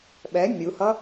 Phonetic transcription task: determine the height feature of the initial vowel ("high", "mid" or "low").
mid